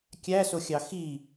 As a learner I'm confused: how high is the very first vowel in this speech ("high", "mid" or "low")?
low